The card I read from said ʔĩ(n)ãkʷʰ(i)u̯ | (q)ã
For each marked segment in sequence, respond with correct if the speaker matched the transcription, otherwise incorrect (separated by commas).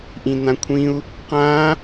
correct, incorrect, correct